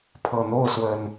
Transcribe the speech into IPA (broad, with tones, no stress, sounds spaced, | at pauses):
pʰ ɤ˨˩ n̪ o˥˨ ʊ̯ s w ə˨˩ n